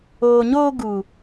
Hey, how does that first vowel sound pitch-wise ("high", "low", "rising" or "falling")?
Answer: low